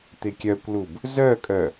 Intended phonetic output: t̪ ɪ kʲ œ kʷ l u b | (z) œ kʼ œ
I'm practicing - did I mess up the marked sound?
no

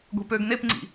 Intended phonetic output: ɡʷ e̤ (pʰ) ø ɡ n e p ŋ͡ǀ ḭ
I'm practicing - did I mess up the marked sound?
yes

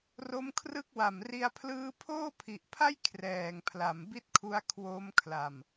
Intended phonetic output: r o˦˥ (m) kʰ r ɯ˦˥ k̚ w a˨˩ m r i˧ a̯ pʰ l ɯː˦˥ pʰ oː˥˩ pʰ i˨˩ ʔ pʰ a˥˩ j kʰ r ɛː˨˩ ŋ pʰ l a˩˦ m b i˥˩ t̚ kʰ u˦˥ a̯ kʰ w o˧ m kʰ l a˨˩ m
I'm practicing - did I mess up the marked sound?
no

